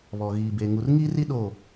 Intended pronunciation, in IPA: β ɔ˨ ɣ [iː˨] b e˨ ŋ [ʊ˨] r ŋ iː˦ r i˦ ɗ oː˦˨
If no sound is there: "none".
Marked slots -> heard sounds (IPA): iː˨, u˨

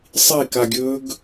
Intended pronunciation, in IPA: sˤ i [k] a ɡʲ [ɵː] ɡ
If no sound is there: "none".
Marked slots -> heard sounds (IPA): k, ɵː

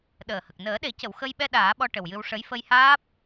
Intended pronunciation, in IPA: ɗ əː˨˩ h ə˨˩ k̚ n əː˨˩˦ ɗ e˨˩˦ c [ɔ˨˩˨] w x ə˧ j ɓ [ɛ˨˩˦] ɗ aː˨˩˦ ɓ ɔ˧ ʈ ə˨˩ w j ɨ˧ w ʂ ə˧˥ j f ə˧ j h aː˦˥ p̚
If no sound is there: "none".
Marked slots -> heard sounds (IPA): ə˨˩˨, ɛ˧

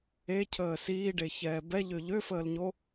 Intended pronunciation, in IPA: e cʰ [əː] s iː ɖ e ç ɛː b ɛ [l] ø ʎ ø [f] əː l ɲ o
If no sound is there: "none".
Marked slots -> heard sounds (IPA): əː, ʎ, f

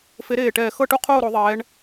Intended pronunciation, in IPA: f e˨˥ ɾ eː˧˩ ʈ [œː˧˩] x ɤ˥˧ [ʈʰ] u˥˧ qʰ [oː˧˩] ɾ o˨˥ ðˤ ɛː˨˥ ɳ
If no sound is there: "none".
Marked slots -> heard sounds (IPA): ɛː˧˩, ʈ, oː˥˧

